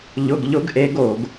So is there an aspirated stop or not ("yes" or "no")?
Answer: no